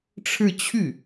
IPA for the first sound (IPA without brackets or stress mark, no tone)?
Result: ʈ͡ʂʰ